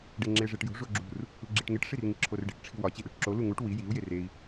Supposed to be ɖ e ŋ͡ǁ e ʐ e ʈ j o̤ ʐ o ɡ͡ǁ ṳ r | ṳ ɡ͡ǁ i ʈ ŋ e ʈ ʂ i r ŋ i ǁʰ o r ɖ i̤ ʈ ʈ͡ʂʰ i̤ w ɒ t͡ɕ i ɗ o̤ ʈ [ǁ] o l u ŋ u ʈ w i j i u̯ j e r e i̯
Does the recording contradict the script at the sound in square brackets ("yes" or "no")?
no